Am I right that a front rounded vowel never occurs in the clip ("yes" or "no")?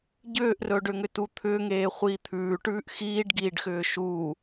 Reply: no